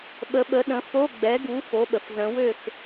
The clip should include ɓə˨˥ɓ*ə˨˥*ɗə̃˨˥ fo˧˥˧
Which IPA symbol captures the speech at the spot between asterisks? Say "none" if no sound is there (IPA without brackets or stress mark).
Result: ə˨˥